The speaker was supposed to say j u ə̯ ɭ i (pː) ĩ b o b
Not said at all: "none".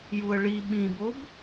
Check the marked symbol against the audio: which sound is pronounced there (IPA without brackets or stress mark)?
ɓ